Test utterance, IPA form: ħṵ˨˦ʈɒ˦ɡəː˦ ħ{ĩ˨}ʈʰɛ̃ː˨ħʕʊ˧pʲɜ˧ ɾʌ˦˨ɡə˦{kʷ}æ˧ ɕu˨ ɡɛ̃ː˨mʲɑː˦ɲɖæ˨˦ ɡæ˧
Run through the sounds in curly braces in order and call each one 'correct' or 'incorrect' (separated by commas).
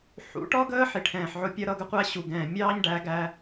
incorrect, incorrect